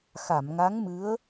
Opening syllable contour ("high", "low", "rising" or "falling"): low